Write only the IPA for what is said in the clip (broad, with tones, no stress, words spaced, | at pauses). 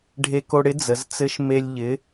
ɖʱe˧ko˧ɽɪ˧˥ d͡zə˩˧zt͡sɘ˧˥ʃ me˧lʲ ʎɪ˩˧